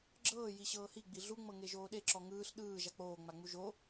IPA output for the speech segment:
ɡ͡ǁɤː jiɕɤːhi ɡ͡biɮu ŋ͡mɤŋeʒoːɗe ǁɔŋɯːɬ ɗɯː ʒak͡poː ŋ͡maŋ͡muʒo

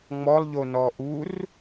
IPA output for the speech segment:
ŋ͡mɔlˠʎonɔ ʔur

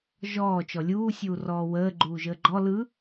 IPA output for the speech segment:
ʒɔː t͡ʃɔlʲuːsʲuː rɔːwəː ɡ͡ǃuːʒəːɡ͡ǃɔ lɯ

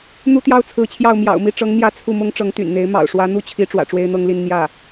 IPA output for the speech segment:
n̪u˥t̪jɑ˥ʊ̯t͡sʰɹ̩˧˥t͡ɕʰjɑ˥˩ʊ̯ mjɑ̰˨˩ʊ̯mi˥˩ ʈ͡ʂɤ˧˥ŋn̪jä˧˥ t͡sʰu˥˩mʊ˥ŋ ʈ͡ʂɤ˧˥ŋt̪y̰˨˩nn̪e˧˥ɪ̯ mɑ̰˨˩ʊ̯ʂwä˧˥n̪u˥˩t͡ɕʰi˧˥ ʈ͡ʂwä̰˨˩ʈ͡ʂwe˥ɪ̯n̪ɤ˥ŋli˥˧n n̪jä˥˩

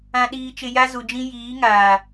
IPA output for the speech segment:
ã˨ ɗiː˨t͡ʃɪ˨ ja˦zu˨d͡ʒĩ˦ jiː˨˦ŋaː˨

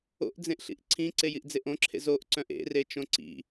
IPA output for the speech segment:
o̰ʔd͡zẽʔɬḭʔ ǀʰĩǀejiʔd͡zeʔ õǁʰḛ zoʔǀœ̃ʔ ḛret͡ʃõ ǀḭ

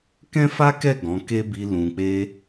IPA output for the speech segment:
kɛ̃˦fa˦kɛ˦˨ ɡɔ̃˨˦ ke˦bi˧ lũ˧k͡pe˦

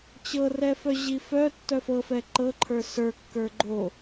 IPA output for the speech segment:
t͡ɕɤrɛfœ ʑifœ tːœfɤfɛ ǃɤǃʰə˞ sə˞ kːə˞ɡ͡ǃo

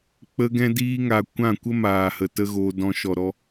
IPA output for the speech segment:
k͡pə˧ɡɛ̃˧diː˧ŋa˨ kʷã˦˨kʷə˦ maː˨hə˨ tə˦ɣoː˧dɔ̃˧ ʃɔ˨ɾɔ˧

